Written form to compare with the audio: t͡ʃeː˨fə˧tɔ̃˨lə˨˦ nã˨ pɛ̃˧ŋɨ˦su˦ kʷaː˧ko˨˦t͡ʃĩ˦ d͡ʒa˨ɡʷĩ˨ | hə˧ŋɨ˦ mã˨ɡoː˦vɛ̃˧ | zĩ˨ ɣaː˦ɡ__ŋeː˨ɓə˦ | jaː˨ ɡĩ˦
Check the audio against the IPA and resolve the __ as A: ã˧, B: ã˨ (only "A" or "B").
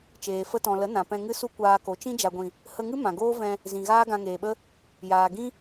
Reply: A